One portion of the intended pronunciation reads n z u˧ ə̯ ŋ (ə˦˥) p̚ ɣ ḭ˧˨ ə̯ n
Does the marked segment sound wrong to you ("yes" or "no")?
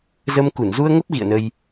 no